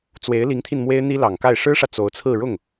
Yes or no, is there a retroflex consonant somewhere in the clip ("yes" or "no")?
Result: yes